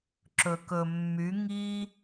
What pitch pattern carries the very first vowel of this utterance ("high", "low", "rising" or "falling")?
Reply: low